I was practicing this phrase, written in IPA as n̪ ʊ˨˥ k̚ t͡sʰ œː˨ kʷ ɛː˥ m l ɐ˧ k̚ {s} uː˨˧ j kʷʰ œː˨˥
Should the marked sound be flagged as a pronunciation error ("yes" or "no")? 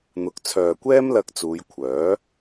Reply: yes